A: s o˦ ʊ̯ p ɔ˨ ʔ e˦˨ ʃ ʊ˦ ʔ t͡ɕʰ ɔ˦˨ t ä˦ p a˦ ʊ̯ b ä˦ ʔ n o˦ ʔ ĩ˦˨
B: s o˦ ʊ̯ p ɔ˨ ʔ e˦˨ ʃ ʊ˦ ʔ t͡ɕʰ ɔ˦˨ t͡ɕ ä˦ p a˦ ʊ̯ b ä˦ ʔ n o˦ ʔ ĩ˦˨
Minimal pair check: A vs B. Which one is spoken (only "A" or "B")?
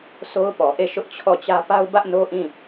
B